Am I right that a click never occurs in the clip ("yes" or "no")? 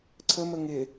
no